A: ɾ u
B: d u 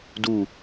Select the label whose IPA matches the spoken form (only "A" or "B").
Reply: B